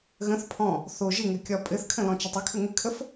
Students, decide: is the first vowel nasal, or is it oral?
nasal